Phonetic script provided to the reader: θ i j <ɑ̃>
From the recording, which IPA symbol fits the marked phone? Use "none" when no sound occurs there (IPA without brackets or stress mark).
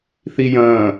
ɐ̃